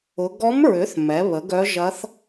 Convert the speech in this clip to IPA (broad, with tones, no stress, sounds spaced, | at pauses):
ʊ˧˥ ɡ ɔ˧˥ m ɹ ʏ˩˥ θ m ɛ˩˥ β ə˩˥ ɡ œ˧˥ ʒ ɐ˧˥ θ